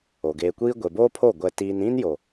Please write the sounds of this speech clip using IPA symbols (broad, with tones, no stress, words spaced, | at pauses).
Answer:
o˨ ɡeː˨kʷiː˦ ɡʷe˨boː˦pʰo˦˨ ɡʷɛ˦tiː˦n ĩ˦njo˨